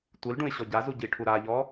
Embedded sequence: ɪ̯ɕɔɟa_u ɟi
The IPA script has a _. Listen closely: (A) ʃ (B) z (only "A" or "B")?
B